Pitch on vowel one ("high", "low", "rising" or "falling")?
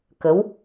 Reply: rising